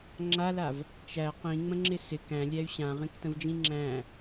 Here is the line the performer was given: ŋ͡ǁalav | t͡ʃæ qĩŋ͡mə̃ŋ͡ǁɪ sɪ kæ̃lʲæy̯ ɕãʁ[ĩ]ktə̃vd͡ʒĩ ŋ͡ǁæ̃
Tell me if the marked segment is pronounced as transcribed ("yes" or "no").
yes